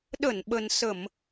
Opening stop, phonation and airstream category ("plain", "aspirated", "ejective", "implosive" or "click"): implosive